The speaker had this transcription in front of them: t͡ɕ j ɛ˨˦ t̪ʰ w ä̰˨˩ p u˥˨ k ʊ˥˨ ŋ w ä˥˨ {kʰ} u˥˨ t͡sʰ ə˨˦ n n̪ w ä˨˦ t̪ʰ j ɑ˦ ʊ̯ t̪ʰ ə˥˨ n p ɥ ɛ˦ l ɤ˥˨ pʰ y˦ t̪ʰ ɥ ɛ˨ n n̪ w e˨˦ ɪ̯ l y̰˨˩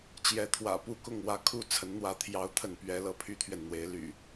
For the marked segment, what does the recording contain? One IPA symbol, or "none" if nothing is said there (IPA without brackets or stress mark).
kʰ